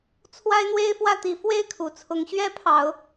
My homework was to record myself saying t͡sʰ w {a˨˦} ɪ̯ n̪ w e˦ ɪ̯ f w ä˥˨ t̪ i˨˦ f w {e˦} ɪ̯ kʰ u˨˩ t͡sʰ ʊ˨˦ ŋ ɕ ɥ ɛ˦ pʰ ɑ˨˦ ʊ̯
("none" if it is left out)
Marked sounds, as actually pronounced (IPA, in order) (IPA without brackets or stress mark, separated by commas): a˦, e˥˨